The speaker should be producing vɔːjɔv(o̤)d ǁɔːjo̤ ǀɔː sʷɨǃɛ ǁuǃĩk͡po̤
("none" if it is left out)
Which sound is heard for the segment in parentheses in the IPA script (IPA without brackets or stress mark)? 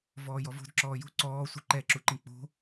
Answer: o̤